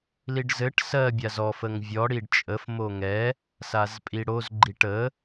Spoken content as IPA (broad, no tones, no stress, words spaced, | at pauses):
liɖzɘʈ sɜ bʲazɔf əŋvʲɔ ɽiɖt͡ʃʼəf moŋɛ | sazpʼiɽoz ɡ͡ǃiʈə